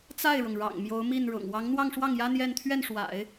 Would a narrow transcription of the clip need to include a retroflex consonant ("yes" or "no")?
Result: yes